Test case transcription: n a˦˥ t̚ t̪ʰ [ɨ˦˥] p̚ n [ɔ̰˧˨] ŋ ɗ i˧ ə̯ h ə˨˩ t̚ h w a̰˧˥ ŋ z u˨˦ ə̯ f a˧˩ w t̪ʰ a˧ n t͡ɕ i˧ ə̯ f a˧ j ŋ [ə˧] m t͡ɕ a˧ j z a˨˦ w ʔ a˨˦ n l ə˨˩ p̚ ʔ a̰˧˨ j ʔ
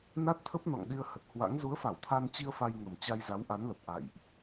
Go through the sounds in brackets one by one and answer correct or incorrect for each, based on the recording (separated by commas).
incorrect, correct, incorrect